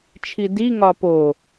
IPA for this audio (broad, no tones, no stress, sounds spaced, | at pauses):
t͡ʃʰ i d i ŋ ɒ p o